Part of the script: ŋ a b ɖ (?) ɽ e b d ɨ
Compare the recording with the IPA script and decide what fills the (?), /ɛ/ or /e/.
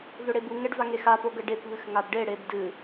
e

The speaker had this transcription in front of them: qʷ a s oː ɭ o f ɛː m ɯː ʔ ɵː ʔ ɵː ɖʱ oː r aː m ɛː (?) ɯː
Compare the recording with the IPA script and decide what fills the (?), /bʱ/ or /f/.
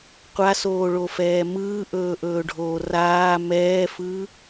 f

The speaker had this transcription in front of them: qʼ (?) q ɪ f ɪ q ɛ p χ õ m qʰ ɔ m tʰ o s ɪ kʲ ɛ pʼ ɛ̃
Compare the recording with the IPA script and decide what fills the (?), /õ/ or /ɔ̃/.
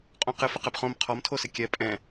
õ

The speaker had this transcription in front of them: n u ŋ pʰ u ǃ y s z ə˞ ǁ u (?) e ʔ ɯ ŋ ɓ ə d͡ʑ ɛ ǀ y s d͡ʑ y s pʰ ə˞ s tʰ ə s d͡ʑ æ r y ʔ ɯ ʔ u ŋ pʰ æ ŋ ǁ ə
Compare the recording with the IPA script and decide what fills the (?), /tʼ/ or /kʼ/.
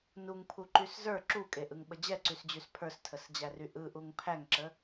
kʼ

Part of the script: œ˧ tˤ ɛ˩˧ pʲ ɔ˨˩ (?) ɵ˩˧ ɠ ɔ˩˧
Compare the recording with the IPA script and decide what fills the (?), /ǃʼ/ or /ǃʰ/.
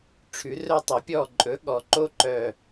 ǃʼ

